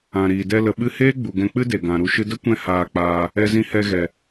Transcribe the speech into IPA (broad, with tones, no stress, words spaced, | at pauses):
ã˨ɾiː˨ dɛ˧lə˨ɓɨ˧heː˦ ɡ͡bu˨ɡɛ̃˧k͡pɨ˦de˨ ɡã˨ɾu˧ ʃɨ˧də˦kʷɛ̃˧ haː˧k͡paː˧ | ɛ˧zĩ˧hɛ˧ɣɛ˨